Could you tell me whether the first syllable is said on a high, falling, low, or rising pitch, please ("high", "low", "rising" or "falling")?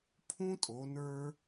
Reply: high